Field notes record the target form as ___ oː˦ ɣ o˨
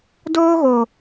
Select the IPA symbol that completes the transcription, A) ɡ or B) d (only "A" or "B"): B